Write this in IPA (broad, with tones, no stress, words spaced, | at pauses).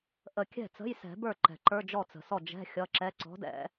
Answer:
ʔə˨˩˦kʲɛ̤˥˩ t͡sə̤˧˥˧jsɛ̤˨˩˦bə˞˥˩ ǃɛ̤˩ ǃə˞˧˥˧d͡ʒɔ˥˩t͡sə̤˩sɔ˥˩ d͡ʒɛ̤˧˥˧ xʲʌ˧˥˧ǁɛ˧˥˧ ǀɔ̤˨˥dɛ̰˨˩˦